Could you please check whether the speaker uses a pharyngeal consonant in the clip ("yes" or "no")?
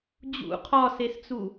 no